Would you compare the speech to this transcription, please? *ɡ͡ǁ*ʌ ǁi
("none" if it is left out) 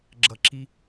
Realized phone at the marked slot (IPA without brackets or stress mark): ɡ͡ǁ